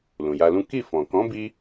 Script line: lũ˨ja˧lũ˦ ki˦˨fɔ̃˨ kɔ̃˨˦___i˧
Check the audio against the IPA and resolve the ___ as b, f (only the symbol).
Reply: b